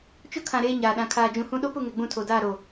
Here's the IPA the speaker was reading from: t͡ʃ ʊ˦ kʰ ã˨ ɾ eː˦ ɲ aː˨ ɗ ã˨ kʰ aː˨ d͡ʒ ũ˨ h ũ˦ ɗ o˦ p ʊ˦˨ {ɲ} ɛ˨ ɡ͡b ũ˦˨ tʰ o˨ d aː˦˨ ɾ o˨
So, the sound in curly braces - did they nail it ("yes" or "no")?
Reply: no